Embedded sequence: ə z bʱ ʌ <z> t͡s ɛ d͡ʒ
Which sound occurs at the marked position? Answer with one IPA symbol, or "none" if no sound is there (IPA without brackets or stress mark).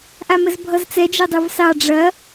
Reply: z